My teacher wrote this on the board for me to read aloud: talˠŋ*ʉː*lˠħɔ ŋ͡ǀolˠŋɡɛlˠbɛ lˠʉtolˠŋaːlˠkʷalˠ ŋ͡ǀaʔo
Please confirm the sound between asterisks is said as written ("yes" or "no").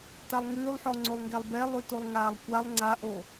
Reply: yes